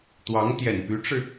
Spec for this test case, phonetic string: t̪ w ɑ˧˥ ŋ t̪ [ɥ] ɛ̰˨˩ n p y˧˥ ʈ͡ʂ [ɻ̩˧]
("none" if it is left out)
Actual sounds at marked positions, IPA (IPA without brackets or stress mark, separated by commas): j, ɻ̩˧